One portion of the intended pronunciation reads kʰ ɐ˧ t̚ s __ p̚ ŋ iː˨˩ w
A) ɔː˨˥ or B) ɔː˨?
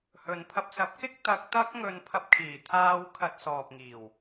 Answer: B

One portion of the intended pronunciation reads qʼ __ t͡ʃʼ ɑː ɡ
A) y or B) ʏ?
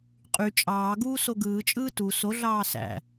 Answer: A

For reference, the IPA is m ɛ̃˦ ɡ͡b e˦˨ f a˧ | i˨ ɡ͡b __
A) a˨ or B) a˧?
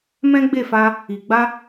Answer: B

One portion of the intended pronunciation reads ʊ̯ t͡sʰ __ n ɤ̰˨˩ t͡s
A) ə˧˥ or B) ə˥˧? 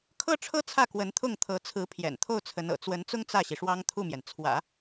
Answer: A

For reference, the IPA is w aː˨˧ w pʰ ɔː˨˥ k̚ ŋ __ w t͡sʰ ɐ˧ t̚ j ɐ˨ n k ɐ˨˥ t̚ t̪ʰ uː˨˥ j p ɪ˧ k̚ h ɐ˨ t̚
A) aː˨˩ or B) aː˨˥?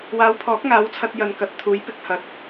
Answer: B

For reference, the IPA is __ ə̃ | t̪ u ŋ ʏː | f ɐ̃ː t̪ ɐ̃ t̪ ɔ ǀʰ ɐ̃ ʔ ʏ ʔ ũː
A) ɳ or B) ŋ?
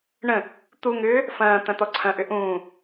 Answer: A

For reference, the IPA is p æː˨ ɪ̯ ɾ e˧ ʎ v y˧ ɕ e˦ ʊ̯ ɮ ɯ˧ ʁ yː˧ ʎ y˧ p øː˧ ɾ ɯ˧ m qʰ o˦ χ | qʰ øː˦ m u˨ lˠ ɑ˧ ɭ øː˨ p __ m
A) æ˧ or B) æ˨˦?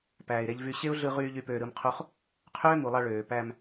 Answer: A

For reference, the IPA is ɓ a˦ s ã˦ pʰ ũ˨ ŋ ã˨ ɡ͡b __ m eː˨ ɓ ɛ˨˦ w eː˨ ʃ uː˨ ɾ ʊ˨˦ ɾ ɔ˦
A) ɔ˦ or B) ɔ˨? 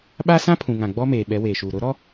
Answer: A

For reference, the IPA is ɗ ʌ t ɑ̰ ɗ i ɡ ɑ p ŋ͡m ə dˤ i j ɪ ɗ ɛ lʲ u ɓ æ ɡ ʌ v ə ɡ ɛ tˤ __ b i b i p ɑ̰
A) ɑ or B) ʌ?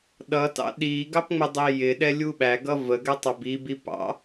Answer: A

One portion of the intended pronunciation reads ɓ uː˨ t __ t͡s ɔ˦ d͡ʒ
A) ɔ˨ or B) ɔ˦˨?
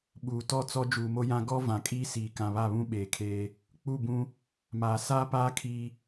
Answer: B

